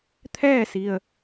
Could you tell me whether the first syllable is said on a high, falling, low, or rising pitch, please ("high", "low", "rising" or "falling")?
falling